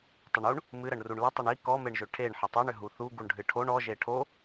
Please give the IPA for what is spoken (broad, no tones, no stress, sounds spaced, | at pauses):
tˤ ə ɳ u ɳ | m ɨ ɾ ə ɳ r u ɳ l ə tˤ ə ɳ i k ɔ m e ɳ ʒ ʏ ʈʰ e ɳ ħ ə tˤ o ɳ ʏ ɦ u θ u ɡ u ɳ ɖʱ ɨ ʈʰ o ɳ ɔ ʒ e ʈʰ o